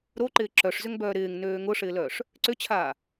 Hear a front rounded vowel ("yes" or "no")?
yes